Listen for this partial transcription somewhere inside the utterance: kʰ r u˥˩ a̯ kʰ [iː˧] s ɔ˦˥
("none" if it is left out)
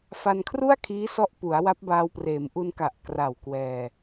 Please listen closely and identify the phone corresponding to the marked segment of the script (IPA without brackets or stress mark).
iː˦˥